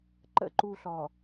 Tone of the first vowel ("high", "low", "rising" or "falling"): high